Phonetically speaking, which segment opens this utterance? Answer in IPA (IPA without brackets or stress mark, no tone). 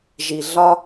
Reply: ʒ